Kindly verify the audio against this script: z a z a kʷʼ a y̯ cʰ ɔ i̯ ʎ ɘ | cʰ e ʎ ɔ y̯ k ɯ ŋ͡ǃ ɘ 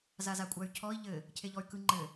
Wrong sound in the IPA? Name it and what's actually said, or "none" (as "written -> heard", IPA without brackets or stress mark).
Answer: none